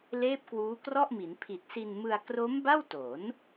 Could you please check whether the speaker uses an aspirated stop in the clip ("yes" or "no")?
yes